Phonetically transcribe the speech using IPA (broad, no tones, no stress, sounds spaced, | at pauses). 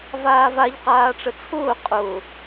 v aː v a ʎ q aː ʈ͡ʂ ə t͡sʰ ʊː qʼ ʊ